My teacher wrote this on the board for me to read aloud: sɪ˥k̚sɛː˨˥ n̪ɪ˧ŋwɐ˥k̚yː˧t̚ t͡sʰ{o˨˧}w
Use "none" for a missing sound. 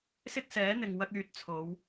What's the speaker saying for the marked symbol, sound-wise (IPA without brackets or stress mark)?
o˨˧